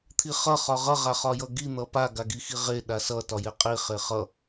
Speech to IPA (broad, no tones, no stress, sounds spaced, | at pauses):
t̪ʰ i χ ʌ χ ɒ ʁ ʌ ʁ a χ ɒ j ʌ ɡ i n̪ ʌ p a ɡ a ɡ i x i ʁ e ɗ a s ʌ t ɒ j e qʼ i χ e χ ʌ